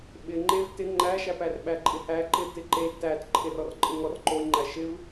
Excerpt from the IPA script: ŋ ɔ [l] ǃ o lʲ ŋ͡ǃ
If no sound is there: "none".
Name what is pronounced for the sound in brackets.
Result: r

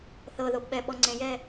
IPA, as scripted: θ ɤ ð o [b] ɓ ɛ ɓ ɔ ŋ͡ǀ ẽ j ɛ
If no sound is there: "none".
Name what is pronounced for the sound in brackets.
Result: b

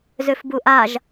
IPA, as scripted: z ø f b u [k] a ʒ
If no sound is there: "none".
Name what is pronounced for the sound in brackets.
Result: ʔ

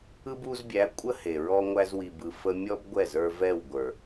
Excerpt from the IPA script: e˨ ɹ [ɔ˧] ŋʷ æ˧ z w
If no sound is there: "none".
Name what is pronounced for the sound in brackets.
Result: ɔ˧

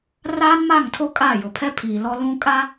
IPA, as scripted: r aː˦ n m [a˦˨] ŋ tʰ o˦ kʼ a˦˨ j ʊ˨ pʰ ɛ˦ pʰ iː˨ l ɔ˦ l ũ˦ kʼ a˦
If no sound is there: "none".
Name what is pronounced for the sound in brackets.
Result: a˦˨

